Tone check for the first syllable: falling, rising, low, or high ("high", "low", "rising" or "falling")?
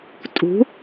rising